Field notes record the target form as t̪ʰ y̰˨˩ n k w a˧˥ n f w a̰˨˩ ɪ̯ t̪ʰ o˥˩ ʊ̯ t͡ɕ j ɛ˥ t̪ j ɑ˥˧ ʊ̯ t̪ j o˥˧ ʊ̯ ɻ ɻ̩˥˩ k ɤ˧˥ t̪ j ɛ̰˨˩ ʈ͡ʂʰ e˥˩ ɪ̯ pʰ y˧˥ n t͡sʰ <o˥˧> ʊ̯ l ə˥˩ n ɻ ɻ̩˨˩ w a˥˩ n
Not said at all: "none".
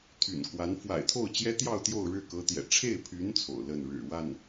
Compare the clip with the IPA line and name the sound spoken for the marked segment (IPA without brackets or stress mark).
o̰˨˩